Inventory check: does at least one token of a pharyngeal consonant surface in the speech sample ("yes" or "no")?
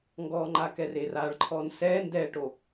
no